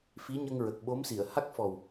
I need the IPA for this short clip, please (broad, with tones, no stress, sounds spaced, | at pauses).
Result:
f i˧˥ ɲ ə˧ ŋ ɹ ə˨˩ k̚ ɓ o˧˥ m s i˨˩˨ ə̯ h a˦˥ k̚ f ɔ˨˩ w